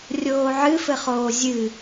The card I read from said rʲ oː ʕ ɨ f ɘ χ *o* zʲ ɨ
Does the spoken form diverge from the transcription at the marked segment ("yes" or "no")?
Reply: yes